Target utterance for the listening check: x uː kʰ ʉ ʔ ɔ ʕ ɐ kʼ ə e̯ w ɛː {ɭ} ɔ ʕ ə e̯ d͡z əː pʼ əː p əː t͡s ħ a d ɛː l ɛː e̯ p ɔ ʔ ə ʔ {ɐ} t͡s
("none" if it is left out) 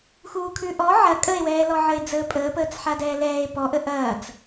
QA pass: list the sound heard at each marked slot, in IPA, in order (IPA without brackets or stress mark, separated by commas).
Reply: l, ɐː